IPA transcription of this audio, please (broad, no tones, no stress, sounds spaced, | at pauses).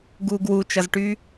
ɡ uː ɡ w u t͡ʃ ʌ z ʈ yː